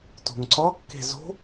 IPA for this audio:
t o̤ ŋ ǀ ɒ kː e̤ z o̤

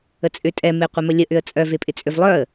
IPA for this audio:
ə t͡sʼ ʏ tʼ ɛ m e qʷ ɪ m ə lʲ ə ʔ ʏ ə̯ t͡sʼ œ v e pʼ ɪ t͡sʼ ʏ v lˠ œ ə̯

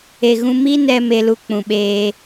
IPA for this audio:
e˨ ɣ ũ˧ m i˦ n ɛ˧ m e˧ l u˧ k͡p ũ˨ ɓ eː˧

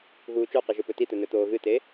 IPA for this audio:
ɣ uː t͡ʃ o q e ʒ ɵ p ɵ t i t̪ ɵ n ɵ t̪ oː ɣ ɨ t e

